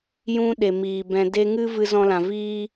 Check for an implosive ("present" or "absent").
present